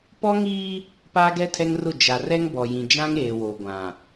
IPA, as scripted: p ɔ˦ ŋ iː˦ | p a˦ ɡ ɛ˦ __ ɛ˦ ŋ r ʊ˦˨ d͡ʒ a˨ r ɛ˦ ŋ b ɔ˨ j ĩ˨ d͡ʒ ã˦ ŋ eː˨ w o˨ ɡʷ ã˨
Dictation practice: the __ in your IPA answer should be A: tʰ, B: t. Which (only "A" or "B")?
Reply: A